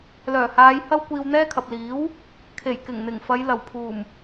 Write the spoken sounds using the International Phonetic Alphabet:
lœː˨˩haː˨˧j hɐ˥w kʷiː˧wn̪ɛː˥kʰɐ˨p̚ liː˨˥w | kʰe˨˩jkɪ˨˩ŋn̪ɪ˨˩ŋfɐ˨˧j lɐ˨˩wpʰuː˨˩m

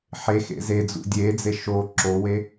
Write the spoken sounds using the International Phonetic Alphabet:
ħexḛ zed͡zṵ dʲed͡ze ʃo ǁowe

